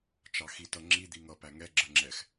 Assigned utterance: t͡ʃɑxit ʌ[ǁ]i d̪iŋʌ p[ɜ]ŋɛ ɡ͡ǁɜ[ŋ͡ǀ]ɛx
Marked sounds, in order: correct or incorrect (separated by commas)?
incorrect, incorrect, incorrect